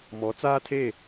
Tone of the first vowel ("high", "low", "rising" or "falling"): rising